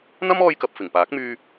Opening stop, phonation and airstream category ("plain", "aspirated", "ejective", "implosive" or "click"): plain